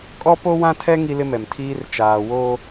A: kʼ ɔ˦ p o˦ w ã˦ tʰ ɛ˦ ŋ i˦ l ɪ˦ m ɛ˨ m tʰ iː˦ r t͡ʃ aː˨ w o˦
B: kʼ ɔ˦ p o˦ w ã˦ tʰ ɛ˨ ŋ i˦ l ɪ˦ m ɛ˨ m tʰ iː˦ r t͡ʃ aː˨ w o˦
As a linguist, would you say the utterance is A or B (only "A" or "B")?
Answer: A